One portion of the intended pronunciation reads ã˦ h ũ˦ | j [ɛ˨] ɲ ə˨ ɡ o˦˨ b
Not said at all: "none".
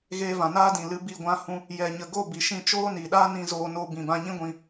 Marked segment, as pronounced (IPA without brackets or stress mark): ɛ˨